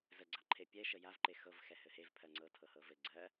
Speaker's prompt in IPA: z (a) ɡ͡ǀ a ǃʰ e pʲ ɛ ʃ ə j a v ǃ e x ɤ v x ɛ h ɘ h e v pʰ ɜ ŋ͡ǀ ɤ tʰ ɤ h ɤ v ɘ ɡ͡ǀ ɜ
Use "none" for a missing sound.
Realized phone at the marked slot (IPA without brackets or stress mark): ə